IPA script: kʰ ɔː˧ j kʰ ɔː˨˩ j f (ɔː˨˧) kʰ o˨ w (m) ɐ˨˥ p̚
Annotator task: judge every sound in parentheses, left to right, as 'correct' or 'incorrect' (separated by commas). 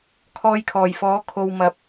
incorrect, correct